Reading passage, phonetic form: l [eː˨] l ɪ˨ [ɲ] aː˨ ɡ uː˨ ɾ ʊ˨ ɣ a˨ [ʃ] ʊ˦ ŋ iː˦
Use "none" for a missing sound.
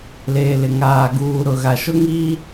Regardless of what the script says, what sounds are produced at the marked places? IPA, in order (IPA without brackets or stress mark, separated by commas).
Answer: eː˨, ŋ, ʃ